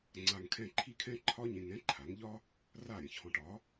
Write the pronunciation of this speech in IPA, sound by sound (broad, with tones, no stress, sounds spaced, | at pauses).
ŋ͡ǀ a˧ ŋ kʰ ɛ̃˥˩ ǃʰ i˥ kʰ ɛ̃˥ ǃʰ ɒ˥ ɲ ẽ˧ ŋ ɛ̃˥ ǃʰ a˩˥ ŋ ʎ ɒ˥ | r a˥˩ ɾʲ ə̃˩ ç h ɔ̃˧ ʈ ɒ˩˥